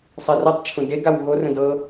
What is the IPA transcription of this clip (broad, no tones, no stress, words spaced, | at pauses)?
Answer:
sˤerɤtˤt͡ʃʰũ deɡaw ɣorə̃d ɤ